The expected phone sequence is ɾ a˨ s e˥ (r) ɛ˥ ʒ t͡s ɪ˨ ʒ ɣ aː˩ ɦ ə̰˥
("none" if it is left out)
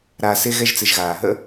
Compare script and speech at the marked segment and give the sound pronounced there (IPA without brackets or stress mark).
ɣ